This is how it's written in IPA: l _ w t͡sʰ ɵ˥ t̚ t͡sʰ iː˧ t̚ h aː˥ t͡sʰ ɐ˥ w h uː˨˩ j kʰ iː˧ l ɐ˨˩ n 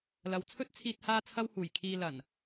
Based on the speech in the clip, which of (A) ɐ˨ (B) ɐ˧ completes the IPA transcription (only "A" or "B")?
A